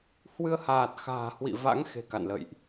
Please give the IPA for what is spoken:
h w ɨ˧ ə̯ h aː˨˩ t̚ x a̤ː˨˩ h w ḭ˧˨ v a̰˧˥ ŋ x e̤˨˩ k a̰˧˨ n l ə̰˧˨ j ʔ

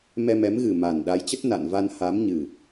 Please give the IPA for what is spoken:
m ɛ˧ m ɛ˨˦ m ɣ ɨ˨˩ m a˨˩ n ɗ a˨˦ j t͡ɕ ə˦˥ t̚ n a̰˧˨ n v a˧ n h a˨˦ m ɲ ɨ˨˩

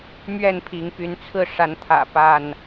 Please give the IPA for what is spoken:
m ɥ ɛ˥˨ n pʰ i˨˦ ŋ p y˨˦ n t͡sʰ ɹ̩˥˨ ʂ a˨˦ n t̪ʰ ä̰˨˩ p a˥˨ n

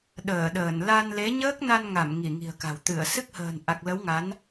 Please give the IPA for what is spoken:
ɗ əː˧˩ ɗ əː˧˩ n l a˧ n l e˨˦ ɲ əː˦˥ k̚ n a˧ n ŋ a˧˩ m ŋ i˧˩ ŋ i̤˨˩ ə̯ k a̤˨˩ w t̪ ɨ˧˩ ə̯ s ɨ˦˥ k̚ h ə̤ː˨˩ n ʔ a˨˩ k̚ l ə˨˦ w ŋ a˨˦ n

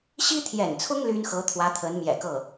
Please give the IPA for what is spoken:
ɕ i˥ t̪ʰ j ɛ̰˨˩ n t͡sʰ ʊ˥ ŋ l y˥ n x ɤ˧˥ t̪ʰ w ä˧˥ t̪ʰ ə˧˥ n m j ɛ̰˨˩ k ɤ˥˩

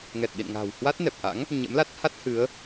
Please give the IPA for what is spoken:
ŋ ɛ˨˩ t̚ ɗ ḭ˧˨ n ŋ a̤˨˩ w h w a˦˥ t̚ n ɛ˨˩ p̚ ʔ a̰˧˥ ŋ | ɲ ə̰˧˥ m l a˦˥ t̚ h a˦˥ t̚ h ɨ˨˦ ə̯

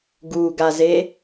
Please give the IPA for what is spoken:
ɡ u ɡ a z e

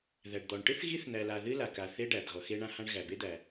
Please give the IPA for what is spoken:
ð æ˩ ɖ d̪ ɔ˩ ɳ ʈ ɨ˥ θ ɣ i˥ θ n̪ æ˩ l a˩ ð ɨ˥ l a˩ k a˩ θ e˥ ɖ æ˩ b ɣ ɔ˩ x e˥ ɳ ã˥ h ã˥ ɳ ɣ æ˩ b e˥ d̪ æ˩

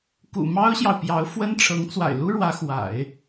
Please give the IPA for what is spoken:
k ṵ˨˩ m ɑ˥ ʊ̯ ɕ j ɑ˨ ʊ̯ p j ɑ˧˥ ʊ̯ f w ə˥ n ʈ͡ʂʰ ɤ˧˥ ŋ t͡s w a̰˨˩ ɪ̯ l u˥ ɻ w ä˧˥ x w a̰˨˩˦ ɪ̯

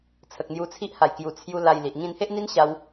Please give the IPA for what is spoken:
t͡sʰ ə˨ k̚ n̪ j u˧ t͡sʰ i˦ ʔ h a˨˩ j k j u˨˩ t͡sʰ j u˧ l a˧ j l i˨ ʔ ŋ ĩ˧ n h e˦ ʔ n̪ i˦ n ɕ a˧ w

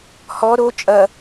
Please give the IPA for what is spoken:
h ɔ ɾ o t͡ʃʼ ɐ

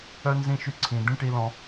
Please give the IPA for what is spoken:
œ˥ n z ĩ˥ ʃ y˦ ǀʰ ĩ˨ d̪ ĩ˥ ʈ i˥ l ɔ̃˦

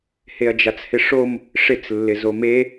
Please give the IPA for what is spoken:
h e ɐ̯ d͡ʒ a t͡s h ɪ ʂ o m | ʂ ɪ t͡s lː ɪ z o m e

